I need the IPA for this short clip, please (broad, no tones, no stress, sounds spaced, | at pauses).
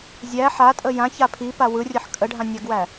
zʲ æ ħ a tʼ ə j ã ç a pʰ i p a w ɯ rʲ ə ħ kʼ ə ɖʱ ã nʲ a ɡ w æ